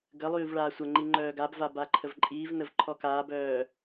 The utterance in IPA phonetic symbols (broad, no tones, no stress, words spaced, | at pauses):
ɡəlˠyːv ɭaːsʷəŋ͡ǃi ŋ͡ǃœːɡabva baǃʰəvǃʼiːvnəv ǃʰɔkaːbœː